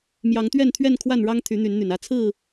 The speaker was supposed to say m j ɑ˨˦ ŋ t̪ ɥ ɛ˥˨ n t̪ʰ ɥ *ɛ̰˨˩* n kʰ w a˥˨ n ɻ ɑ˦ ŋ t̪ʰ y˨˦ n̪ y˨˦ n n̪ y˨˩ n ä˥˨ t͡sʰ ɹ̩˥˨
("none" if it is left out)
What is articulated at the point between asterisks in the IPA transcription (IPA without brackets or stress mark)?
ɛ˥˨